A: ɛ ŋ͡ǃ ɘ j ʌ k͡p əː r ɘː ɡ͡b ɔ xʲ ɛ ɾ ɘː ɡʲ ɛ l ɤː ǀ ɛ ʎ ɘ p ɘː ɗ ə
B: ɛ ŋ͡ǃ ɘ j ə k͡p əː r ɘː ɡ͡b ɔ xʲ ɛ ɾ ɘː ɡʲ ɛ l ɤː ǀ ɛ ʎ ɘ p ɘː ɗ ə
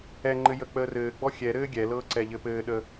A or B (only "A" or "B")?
B